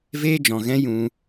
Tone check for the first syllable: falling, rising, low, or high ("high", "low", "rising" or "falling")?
high